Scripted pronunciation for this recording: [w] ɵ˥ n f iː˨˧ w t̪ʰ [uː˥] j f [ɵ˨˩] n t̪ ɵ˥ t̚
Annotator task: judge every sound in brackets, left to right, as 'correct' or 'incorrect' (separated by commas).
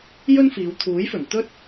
incorrect, incorrect, correct